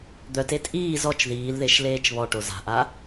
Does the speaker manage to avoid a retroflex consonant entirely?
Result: no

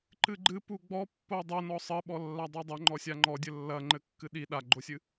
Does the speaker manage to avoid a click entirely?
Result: no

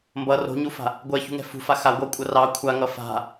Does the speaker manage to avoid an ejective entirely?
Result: no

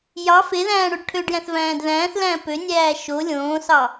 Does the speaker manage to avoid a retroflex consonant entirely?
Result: no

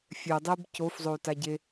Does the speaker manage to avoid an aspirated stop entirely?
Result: yes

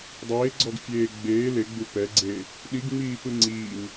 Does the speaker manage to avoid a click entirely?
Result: no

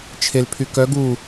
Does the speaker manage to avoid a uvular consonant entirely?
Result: yes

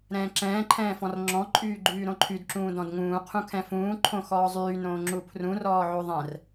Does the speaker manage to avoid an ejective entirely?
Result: no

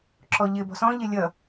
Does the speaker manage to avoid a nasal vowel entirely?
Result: no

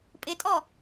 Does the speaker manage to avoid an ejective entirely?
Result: no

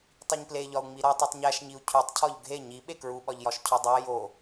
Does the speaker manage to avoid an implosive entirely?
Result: no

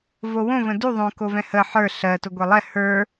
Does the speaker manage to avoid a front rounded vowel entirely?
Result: yes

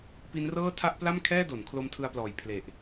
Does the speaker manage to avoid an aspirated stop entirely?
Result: no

